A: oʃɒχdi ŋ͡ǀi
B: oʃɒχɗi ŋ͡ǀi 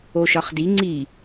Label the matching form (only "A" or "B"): A